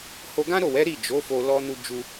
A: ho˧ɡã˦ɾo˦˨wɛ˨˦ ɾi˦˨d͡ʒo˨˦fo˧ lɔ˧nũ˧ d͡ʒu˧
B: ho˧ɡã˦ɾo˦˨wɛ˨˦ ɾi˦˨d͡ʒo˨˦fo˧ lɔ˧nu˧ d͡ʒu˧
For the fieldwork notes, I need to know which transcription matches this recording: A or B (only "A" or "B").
B